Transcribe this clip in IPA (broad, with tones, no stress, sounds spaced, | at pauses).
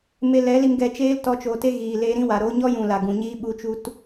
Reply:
m e˧ l ɛ˨˦ l i˧ m ɡ ɛ˧ t͡ʃ eː˦ l t ɔ˧ t͡ʃ oː˨ t e˦ ɣ iː˨ l eː˧ ɾ ĩ˦ w a˨ ɾ oː˧ ɲ ɔ˦ j ũ˨ l a˨ ɡ ũ˨ ɲ iː˦ ɓ u˧ t͡ʃ u˧ t